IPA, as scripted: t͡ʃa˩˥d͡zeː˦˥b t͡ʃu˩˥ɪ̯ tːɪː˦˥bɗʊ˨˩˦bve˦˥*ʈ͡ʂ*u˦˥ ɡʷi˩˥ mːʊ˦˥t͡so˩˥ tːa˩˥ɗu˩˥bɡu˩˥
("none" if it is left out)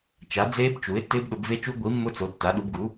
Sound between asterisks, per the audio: t͡ʃ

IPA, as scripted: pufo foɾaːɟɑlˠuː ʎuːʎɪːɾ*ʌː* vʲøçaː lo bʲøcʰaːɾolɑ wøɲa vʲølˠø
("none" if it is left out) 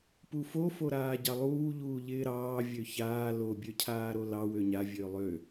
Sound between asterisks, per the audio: ɑː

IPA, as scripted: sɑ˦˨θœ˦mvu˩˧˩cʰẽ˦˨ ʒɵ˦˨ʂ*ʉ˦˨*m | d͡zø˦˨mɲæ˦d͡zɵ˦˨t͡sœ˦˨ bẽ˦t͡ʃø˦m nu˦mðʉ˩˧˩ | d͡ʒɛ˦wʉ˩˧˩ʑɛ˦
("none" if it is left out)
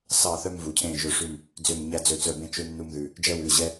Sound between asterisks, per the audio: ʉ˦˨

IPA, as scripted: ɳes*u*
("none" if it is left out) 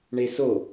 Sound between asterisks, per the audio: o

